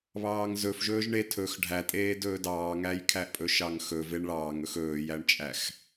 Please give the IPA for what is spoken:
β ɑː ŋ z ɵ f ʒ ɵː ʒ ɳ e tʰ ɵ x ɖʱ æ tʼ eː d ɵː d ɑː ŋ æ j kʰ æ ʔ pʼ ɵ ʃ ɑ ŋ x ɵ v e ɳ ɭ ɑː ŋ ɵ x ɵː j æ ɳ t͡ʃʼ æ x

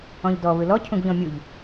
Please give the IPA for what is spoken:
ɔ̃ ʎ d ɔ β ɯ l ɔ cʰ ũ ɡ ʎ ɔ̃ mʲ u ʎ

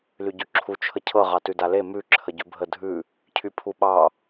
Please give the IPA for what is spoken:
l y ɟ ʉ ǁʰ u t͡ʃʰ ə cʰ ɤ ʁ ɑ t ʉ d a l e m ʉ ǁʰ ə ɟ ʉ bʱ ə dʱ ʉ | cʰ y pʰ u ɓ ɑ

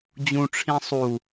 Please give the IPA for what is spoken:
d͡ʑ ũ ʈ͡ʂʰ ĩ sˤ u

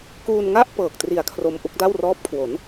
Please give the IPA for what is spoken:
k uː˧ n ŋ a˥˩ ʔ p ɤː˨˩ k̚ t r i˨˩ a̯ kʰ r o˧ m ʔ u˥˩ k̚ d a˥˩ w r ɔː˦˥ p̚ kʰ w o˩˦ n

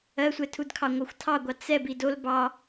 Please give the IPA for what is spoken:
ɜ sʷ ɛ tʰ u d kʰ ɑ ŋʷ ɑ xʷ tʰ ɑ ɡʷ ɑ t͡s ɛ b i d o l b ɑ

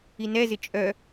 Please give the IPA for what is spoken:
i n ɛ z ɪ t͡ʃʼ œ

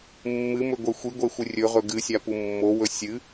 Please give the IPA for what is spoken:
mː ɨ m ɵ ɡʷ e xʷ i ɡʷ e xʷ ɨ rʲ ɵ ʁ ɵ ɡ ɨ sʲ a p u mː o w ɵ sʲ ɨ

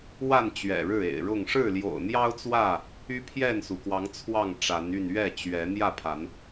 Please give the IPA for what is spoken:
w a˥˨ n t͡ɕ ɥ ɛ̰˨˩ ɻ ɻ̩˥˨ ḛ˨˩ ɪ̯ ɻ ʊ˥˨ ŋ ʂ ɻ̩˥˨ l j o̰˨˩ ʊ̯ n̪ j ɑ˦ ʊ̯ t͡s w ä˥˨ | y˦ pʰ j ɛ˥˨ n s u˩ k w ɑ˨˦ ŋ t͡sʰ w ɑ˥˨ ŋ ʈ͡ʂ a˨˦ n y˥˨ n ɥ ɛ˥˨ t͡ɕ ɥ ɛ˨˦ n̪ j ä˥˨ pʰ a˨˦ n

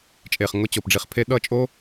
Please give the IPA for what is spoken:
t͡ʃʼ e˨ χ ŋ ʊ˨˦ t͡ɕ o˨ p ɖ͡ʐ i˧ χ pʰ e˦ ɗ ʌ˦˨ t͡ʃʼ o˦

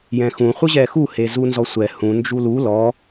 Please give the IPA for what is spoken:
j ɛ̃ x ũ χʷ ɯ ʑ ɛ x u h e z u n z ɔ sʷ ɛ h ũ n d͡ʒ u l u l ɔ

